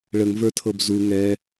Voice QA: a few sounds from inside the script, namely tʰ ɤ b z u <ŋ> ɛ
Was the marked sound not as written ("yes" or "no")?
no